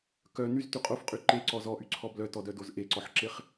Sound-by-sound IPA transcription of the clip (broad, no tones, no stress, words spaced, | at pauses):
kœ nyzty qʼofqʼy ǃeǀɔ zɔʔyǀʰɔ blœtɔdœdoz ʔeǀɔħǁeχ